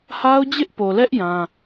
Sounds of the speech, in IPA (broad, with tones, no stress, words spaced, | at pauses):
ha˦ʊ̯d͡ʑɪ˦ʔpo˨lɛ˦ʔ jã˦